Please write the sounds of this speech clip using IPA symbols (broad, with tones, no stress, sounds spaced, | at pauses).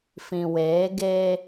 f ĩ˨ w eː˨˦ ɡ eː˦